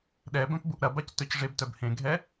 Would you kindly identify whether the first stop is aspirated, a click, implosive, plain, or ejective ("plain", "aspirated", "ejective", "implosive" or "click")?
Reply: implosive